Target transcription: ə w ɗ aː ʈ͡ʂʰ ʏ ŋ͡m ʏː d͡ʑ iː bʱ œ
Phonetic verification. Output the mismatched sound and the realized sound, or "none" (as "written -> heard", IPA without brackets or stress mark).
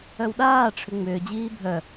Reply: ə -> œ